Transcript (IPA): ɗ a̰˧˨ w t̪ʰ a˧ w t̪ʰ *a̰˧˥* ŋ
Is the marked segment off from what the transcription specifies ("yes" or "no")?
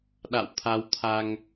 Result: yes